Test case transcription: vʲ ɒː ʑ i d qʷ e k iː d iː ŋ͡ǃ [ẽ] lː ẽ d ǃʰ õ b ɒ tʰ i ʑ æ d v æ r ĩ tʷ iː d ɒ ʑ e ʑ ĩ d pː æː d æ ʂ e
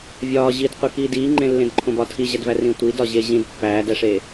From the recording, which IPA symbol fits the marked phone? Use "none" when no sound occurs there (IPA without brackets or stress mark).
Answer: ẽ